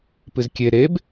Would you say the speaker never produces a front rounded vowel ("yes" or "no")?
yes